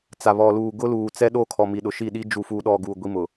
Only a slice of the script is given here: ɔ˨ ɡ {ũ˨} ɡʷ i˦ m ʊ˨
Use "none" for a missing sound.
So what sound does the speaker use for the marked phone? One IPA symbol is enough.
u˨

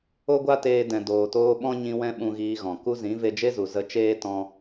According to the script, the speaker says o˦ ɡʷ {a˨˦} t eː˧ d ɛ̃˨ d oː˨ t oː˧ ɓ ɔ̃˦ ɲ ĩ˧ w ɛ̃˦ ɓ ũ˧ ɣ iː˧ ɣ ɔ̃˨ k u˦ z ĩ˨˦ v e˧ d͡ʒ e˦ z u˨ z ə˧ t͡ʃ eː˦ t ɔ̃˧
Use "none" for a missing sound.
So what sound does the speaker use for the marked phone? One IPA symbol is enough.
a˦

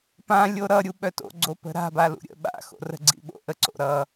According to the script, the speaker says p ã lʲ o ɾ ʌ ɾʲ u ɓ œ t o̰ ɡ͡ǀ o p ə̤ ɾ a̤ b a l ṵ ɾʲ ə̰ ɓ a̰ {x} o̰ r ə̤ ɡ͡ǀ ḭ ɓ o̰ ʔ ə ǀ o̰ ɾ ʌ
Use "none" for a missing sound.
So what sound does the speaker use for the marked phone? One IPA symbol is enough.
x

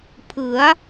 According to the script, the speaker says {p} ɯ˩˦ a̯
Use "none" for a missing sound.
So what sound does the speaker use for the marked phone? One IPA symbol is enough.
pʰ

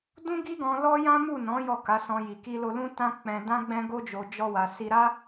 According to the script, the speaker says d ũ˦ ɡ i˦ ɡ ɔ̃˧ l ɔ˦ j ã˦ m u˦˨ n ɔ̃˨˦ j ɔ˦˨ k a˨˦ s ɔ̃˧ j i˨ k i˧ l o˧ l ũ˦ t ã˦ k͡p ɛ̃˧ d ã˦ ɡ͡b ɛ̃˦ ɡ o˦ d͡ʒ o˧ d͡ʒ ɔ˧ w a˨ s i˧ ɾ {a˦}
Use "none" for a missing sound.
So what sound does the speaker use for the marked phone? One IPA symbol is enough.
a˦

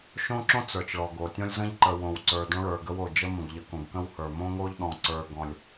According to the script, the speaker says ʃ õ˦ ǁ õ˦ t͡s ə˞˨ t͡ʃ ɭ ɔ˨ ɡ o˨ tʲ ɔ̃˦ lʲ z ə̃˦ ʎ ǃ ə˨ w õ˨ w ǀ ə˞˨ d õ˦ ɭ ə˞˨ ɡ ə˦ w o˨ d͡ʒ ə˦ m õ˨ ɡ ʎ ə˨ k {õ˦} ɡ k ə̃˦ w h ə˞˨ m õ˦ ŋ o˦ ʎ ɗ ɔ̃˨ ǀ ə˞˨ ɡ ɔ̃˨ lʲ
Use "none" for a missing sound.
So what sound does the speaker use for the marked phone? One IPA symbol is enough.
õ˨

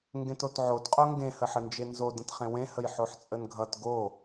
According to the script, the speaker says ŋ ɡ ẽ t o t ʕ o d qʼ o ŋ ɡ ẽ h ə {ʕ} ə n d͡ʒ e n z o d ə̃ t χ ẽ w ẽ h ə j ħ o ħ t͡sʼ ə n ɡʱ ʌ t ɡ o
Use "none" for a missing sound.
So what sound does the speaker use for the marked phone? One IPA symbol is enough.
ħ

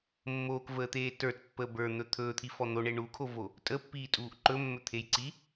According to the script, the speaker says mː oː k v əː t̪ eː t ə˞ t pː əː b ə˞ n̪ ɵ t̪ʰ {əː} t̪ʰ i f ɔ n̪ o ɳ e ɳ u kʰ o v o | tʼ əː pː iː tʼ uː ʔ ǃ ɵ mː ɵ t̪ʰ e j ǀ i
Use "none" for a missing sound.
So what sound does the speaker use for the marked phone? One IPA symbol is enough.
ɵː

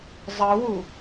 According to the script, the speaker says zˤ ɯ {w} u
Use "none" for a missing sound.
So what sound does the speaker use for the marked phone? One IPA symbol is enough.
w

